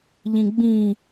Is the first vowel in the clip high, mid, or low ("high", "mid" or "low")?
high